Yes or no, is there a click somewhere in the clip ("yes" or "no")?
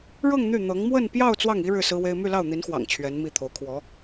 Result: no